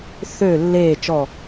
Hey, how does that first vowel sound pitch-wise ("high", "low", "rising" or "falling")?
falling